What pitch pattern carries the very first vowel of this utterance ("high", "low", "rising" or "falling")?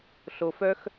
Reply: low